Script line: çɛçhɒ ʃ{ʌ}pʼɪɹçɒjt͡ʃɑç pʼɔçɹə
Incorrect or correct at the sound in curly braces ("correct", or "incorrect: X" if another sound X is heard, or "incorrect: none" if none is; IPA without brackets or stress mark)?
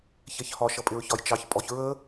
correct